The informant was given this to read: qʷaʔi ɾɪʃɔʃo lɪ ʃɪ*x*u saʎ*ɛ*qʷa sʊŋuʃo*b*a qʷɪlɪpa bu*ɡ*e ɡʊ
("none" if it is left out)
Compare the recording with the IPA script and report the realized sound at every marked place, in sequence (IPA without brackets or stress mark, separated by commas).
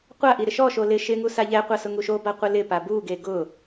ŋ, ɛ, b, ɡ